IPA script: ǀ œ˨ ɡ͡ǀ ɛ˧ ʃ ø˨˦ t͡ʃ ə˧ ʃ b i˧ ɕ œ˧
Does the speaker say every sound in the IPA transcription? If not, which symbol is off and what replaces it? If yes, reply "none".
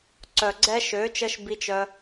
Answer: ɕ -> t͡ʃ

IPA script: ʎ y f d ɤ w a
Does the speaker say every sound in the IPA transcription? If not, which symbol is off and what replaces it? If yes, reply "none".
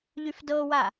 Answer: none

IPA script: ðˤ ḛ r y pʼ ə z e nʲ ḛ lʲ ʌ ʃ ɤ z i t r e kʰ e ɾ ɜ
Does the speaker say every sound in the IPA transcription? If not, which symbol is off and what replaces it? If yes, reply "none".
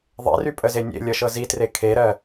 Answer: none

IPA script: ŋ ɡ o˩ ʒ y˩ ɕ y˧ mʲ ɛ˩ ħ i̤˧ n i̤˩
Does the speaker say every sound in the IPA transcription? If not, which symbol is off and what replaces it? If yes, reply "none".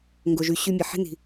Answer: none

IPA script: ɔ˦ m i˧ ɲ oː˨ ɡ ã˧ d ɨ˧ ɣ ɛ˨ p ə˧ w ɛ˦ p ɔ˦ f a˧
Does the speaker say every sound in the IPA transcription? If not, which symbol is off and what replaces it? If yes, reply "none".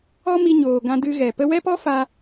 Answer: none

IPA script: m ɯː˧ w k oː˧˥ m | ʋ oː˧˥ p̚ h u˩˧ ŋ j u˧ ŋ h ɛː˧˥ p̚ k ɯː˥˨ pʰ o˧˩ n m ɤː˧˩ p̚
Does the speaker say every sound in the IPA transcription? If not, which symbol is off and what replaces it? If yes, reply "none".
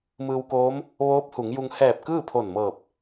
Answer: ɛː˧˥ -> ɛː˧˩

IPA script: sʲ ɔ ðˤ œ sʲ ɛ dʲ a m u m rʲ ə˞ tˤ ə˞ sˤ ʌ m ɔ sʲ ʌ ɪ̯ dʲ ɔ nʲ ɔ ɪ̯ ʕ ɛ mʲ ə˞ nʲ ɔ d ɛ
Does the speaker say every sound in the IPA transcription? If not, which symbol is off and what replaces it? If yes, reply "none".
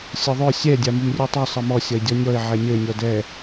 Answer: none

